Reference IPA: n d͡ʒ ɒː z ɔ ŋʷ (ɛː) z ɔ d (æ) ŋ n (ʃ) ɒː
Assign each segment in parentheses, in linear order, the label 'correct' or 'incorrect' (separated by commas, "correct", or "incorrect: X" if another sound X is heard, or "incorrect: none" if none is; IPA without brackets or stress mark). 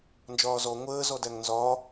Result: incorrect: əː, correct, incorrect: z